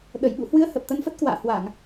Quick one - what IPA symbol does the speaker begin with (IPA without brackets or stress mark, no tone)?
ɗ